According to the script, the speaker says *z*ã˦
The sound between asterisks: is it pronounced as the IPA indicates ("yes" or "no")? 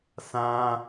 no